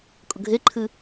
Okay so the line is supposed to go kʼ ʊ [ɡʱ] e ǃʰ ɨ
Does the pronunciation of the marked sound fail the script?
no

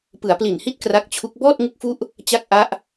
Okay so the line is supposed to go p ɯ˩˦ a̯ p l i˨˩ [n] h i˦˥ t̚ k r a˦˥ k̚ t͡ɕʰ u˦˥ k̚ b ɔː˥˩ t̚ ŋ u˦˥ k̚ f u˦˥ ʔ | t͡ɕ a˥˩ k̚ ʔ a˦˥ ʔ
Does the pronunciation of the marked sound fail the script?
no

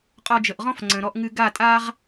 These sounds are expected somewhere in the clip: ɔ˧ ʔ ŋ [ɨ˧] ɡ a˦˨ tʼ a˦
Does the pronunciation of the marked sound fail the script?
no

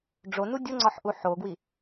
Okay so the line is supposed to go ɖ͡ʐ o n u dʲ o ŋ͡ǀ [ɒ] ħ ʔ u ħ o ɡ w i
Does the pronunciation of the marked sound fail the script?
no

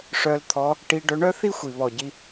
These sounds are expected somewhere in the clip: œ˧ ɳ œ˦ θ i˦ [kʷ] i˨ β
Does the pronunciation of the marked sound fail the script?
yes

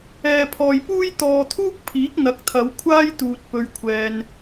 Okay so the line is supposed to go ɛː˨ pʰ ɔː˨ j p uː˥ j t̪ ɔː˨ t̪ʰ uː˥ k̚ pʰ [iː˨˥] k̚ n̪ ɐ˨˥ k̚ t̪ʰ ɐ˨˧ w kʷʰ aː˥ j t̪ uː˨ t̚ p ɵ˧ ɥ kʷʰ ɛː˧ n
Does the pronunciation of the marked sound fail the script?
no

